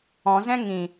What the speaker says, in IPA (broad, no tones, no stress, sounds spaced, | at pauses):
ɔ̃ z ɛ̃ ŋ ĩ